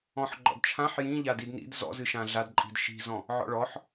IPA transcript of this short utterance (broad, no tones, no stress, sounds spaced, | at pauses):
ɔ̃ ħ ɡ͡ǃ ɔ̰ d t͡ʃʰ ã ħ j ĩ ʎ a d i d n ḭ d z ɔ̰ z ɨ ʃ ã ɮ a d ǃʼ i̤ d ʃ i̤ z ɔ̃ | ʕ ɔ̰ ɭ ɔ ħ